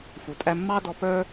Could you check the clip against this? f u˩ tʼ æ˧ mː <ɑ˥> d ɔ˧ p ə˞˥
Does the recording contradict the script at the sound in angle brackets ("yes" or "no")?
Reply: no